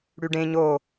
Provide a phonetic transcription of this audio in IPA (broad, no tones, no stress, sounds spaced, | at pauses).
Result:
ɽ y ɖ ẽ ɲ o